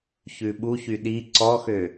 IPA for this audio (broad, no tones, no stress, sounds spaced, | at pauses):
ç ʉ ɓ u ç y ɗ i ǀ ɔ x ø